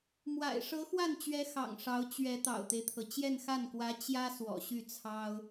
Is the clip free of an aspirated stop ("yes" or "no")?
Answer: no